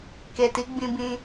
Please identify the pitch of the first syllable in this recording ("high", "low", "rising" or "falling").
low